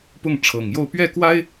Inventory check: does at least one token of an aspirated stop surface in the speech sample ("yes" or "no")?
yes